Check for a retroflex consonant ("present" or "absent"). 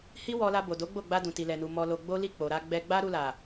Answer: absent